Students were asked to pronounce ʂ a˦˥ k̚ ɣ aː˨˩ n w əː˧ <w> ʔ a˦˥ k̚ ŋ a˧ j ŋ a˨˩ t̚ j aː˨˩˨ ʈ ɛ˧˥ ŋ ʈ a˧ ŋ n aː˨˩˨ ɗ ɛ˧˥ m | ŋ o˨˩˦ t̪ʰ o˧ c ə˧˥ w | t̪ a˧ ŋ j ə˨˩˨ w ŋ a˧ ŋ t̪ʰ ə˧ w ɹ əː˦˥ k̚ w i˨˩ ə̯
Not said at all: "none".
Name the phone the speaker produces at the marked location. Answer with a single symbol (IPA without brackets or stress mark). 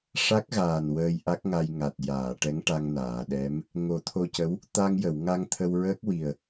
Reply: j